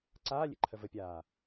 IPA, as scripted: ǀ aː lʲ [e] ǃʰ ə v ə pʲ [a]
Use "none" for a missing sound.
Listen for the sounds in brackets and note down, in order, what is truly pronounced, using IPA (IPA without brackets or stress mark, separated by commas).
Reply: ḛ, aː